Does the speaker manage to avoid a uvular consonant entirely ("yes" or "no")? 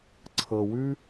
yes